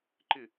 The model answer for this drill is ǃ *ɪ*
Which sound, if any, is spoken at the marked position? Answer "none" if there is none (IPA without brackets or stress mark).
ɪ